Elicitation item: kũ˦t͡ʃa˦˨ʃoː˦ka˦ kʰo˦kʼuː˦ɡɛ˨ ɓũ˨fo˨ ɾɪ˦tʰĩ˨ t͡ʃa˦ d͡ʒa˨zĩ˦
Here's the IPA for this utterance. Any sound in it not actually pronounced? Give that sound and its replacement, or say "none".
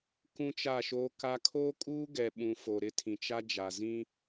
none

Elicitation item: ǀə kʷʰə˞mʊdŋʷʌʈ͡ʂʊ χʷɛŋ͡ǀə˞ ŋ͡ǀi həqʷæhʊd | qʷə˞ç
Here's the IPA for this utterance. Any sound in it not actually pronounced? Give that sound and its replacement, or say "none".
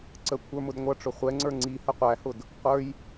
ç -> j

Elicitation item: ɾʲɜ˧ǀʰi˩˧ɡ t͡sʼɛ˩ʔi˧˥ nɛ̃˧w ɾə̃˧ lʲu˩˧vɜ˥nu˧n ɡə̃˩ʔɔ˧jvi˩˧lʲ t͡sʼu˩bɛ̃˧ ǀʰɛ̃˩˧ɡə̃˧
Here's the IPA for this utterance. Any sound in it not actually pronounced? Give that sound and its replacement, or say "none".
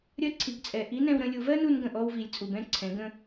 j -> w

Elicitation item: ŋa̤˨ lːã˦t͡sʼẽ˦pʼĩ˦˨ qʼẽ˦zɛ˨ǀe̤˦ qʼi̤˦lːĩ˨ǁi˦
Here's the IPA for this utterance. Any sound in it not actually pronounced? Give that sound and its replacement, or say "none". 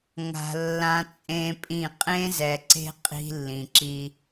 none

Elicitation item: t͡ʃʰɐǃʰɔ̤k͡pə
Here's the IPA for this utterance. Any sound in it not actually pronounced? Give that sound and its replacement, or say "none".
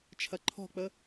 none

